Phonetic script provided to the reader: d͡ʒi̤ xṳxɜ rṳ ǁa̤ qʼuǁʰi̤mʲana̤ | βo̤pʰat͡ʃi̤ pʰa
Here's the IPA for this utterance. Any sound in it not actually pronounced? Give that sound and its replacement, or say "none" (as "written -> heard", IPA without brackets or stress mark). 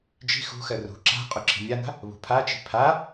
o̤ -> ṳ